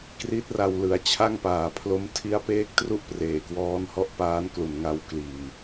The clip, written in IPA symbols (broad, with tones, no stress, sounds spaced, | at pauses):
k r i˦˥ t̚ r a˧ w l ɯ˩˦ a̯ t͡ɕʰ a˥˩ ŋ p aː˨˩ pʰ l o˦˥ m tʰ i˦˥ a̯ p eː˦˥ k̚ t r u˥˩ ʔ p r eː˨˩ k w ɔː˦˥ n h ɔ˦˥ ʔ p aː˦˥ n k l u˨˩ n ŋ a˧ w k l iː˨˩